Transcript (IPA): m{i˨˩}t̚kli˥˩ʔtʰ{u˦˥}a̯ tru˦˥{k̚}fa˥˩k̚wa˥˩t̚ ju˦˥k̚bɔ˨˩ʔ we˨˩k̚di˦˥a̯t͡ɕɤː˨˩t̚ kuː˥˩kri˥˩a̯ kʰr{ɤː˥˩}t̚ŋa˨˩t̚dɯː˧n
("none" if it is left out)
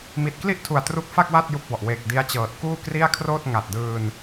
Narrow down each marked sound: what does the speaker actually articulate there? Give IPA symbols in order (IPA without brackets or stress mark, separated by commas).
i˨˩, u˨˩, k̚, oː˥˩